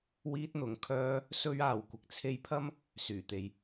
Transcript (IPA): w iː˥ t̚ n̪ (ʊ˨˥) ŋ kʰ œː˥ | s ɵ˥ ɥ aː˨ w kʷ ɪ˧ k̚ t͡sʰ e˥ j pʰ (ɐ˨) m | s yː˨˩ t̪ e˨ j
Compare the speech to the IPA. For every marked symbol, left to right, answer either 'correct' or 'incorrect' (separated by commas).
incorrect, incorrect